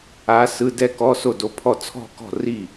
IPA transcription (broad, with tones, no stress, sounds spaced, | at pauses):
a˧˥ s ɯ˧˥˧ d ɛ˥˧ k ɔ˧˥˧ s o˥˩ d o˧˥ pʰ ɔ˥˩ t͡sʰ ɔ̤˥˧ k ɔ̤˥˩ r i˥˩